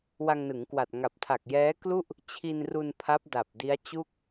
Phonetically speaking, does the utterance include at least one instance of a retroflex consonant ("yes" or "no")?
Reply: no